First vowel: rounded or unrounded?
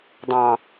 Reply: unrounded